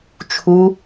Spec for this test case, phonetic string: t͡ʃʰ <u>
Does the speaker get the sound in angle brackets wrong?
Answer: no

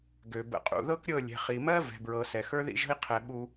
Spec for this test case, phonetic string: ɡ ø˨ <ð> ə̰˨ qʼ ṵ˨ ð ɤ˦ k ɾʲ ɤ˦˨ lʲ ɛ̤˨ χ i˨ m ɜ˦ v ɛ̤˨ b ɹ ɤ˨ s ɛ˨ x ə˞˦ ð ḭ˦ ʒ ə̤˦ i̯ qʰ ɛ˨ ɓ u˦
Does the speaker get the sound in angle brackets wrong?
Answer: yes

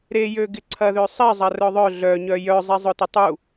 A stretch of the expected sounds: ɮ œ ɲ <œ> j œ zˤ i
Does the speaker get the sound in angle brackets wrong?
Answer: no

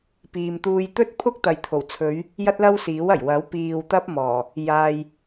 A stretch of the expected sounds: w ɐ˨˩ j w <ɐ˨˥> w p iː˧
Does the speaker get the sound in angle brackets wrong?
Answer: no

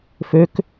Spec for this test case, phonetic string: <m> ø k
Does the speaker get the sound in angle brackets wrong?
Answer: yes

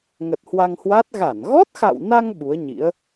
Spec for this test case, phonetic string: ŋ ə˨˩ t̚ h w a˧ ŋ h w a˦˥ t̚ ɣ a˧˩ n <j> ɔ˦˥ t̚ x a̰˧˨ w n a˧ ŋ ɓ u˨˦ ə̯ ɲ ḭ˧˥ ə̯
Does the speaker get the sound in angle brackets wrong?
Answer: yes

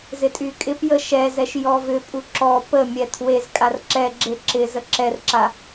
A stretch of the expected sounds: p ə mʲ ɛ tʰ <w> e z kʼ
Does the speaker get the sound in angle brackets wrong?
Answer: no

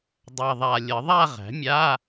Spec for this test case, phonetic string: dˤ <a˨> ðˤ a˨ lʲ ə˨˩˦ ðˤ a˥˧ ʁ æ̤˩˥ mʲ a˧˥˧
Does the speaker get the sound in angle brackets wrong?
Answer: no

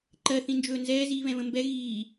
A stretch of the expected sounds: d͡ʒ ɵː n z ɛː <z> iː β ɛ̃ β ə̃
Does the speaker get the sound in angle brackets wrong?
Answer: no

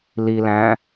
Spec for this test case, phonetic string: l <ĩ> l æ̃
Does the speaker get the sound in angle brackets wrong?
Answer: yes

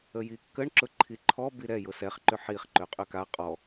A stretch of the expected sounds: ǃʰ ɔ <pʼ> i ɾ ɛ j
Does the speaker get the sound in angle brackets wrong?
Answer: yes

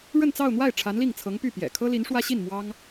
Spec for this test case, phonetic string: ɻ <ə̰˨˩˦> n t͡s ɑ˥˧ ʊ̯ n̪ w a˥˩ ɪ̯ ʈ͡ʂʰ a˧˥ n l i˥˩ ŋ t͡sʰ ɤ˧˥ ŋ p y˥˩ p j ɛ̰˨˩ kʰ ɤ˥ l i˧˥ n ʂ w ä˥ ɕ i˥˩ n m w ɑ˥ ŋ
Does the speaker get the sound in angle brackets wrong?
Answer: yes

